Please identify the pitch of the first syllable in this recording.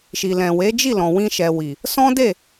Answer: low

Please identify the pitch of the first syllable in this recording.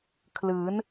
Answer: rising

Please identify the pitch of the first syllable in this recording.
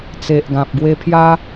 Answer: low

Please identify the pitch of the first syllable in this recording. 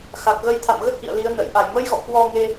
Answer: low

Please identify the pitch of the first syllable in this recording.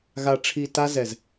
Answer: low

